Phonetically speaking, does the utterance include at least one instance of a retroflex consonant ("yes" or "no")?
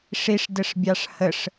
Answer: yes